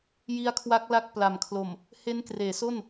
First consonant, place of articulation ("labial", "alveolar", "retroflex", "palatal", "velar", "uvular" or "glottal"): palatal